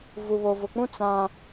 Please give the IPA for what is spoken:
vu˨βo˨vʊ˨k͡pũ˦ t͡sã˦

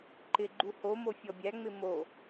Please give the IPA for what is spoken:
ǃɪɡ͡ǃu homo fʲɔbʲæŋ͡mɪ mo

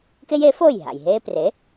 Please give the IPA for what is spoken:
ke˥je˩˥foː˥˩j ɦa̰˩jɦeː˥ pre˩˥

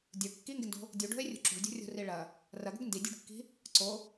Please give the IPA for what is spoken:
dʲə˞ kːiŋɡɪndo̤ | dʲuɖo̤e̯rʲṳ ǁṳɭdʲṳrʲo̤ri ɭɐ | rɐɡo̤ɡ ndidʲṳɖkːi̤ | ǀo

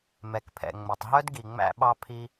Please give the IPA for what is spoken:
mɛ˨kpʰɛ̰˨ ŋ͡mɵ˨tˤɦœ˦d ɡi˨ŋ͡mæ̰˧ɓɑ˧ pʰi˧

